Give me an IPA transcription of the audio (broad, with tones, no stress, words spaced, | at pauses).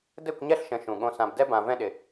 dɘ˦˨kʷɲɛ˦˨ɬʃə̃˨ ʃũ˨ɠõ˧ sã˨bdɛ˧bã˨ vɛ̃˧ɗɪ˨